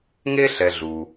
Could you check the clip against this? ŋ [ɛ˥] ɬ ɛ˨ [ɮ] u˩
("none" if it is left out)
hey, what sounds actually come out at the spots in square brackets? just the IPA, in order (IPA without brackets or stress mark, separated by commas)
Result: e˥, ɮ